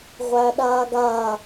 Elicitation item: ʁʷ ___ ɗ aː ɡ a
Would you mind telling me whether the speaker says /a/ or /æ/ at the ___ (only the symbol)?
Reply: æ